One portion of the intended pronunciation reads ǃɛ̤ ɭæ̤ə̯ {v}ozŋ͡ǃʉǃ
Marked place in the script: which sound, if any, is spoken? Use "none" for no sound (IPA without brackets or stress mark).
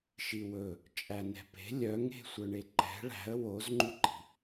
w